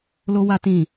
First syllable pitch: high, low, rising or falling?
high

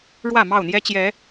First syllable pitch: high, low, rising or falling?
falling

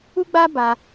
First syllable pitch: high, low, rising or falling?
high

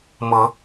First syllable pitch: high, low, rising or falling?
rising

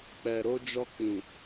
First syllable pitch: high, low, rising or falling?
low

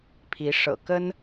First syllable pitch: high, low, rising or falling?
rising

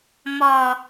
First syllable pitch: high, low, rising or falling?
low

